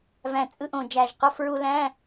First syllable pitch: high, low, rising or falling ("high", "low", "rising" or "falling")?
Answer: low